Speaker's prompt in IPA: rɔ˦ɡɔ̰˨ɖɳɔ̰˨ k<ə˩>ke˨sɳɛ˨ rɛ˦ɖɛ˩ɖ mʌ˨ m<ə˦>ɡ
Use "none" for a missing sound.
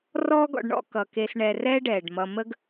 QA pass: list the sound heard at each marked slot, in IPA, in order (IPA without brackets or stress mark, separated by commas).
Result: ʌ˩, ə˦